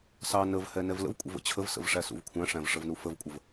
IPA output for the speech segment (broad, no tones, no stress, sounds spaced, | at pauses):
s ɑ n ə v h ɛ n ɛ v l ə̰ v kʷʼ ə̰ v ə̰ t͡ɕʰ ə v s ə̰ v ʂ æ s ṵ v kʷʰ æ̃ ʂ æ̃ v ʂ ə v n u f ə v kʷʼ ə v